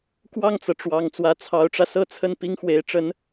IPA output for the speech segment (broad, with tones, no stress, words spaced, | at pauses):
kwɑ˥˩ŋt͡sɤ˩ʈ͡ʂwɑ˨˩ŋ t͡swä˧˥t͡sʰɑ˧˥ʊ̯ʈ͡ʂä˧ sɤ˥˧t͡sʰə˥˩n pi˥ŋxwe˧˥ɪ̯ ʈ͡ʂə˧˥n